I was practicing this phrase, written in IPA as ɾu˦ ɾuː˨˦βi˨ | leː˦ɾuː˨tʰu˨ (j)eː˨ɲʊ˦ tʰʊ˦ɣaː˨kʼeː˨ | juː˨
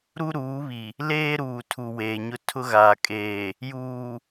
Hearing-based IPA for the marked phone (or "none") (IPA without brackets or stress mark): w